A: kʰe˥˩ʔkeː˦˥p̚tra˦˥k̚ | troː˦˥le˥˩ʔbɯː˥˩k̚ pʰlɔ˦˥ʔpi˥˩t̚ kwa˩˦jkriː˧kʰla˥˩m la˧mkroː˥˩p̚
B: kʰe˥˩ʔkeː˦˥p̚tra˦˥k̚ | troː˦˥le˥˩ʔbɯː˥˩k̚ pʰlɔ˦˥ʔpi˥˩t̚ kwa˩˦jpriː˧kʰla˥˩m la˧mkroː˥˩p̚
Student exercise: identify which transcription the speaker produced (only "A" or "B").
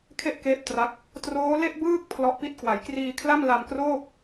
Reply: A